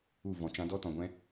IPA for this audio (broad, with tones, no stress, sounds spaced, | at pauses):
u˦˨ v ɔ̃˨ t͡ʃ ã˧ d ɔ˦ t ɔ̃˨ ɡʷ ɛ̃˦